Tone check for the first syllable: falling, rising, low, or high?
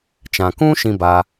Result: low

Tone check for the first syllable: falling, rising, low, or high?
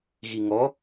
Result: low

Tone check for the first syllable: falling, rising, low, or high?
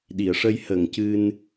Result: low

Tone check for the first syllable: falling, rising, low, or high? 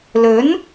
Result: rising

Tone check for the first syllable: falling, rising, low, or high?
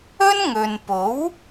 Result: high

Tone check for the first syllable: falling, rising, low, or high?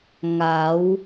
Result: rising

